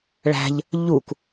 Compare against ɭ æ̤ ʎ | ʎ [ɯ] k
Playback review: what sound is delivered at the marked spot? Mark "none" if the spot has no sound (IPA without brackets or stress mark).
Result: u